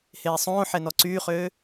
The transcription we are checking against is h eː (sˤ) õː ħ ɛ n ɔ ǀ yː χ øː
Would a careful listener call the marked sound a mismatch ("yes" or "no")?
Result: no